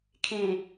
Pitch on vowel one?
low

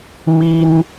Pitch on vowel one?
high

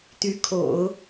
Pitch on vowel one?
rising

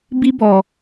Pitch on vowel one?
high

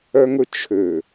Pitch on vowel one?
high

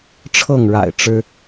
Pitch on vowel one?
falling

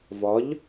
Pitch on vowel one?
rising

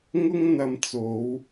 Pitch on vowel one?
high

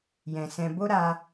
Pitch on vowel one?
low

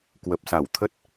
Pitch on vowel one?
low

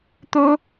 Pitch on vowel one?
high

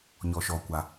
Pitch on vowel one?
low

